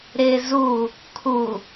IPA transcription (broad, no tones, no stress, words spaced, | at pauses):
ɾɪ zu | kʰu